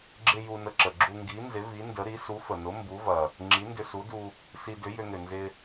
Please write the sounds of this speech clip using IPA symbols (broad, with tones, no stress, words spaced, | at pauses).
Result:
ɡ͡ǁɪ˧ ju˧nə˧ǁə˩ ɡ͡ǁu˧ŋɡi˨˥nzɪ˨˥vi˨˥ ndə˨˥ɾi˨˥ su˨˥fə˩nʊ˨˥ mbu˨˥vɐ˩ | ŋ͡ǁi˨˥ndʏ˧su˨˥du˧ | si˧dʏ˨˥ jʏ˧ŋʏ˩nzɪ˧